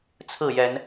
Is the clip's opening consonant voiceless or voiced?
voiceless